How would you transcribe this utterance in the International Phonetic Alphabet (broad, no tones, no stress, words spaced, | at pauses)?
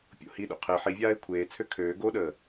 pʲo̰hiɗo̰ qʰe ħivʲaːɪ̯ kʷʰeːt͡sʰø kʰøː ɡoɗəː